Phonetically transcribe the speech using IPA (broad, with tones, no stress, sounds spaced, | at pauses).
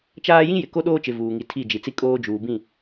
t͡ʃ aː˦ j ĩ˦ j ɪ˨ k o˦ ɗ oː˦ t͡ʃ ɪ˨ v uː˨ ŋ i˨ tʰ i˦˨ d͡ʒ i˨ t͡s i˦ kʼ oː˦ d͡ʒ uː˨ b ĩ˦˨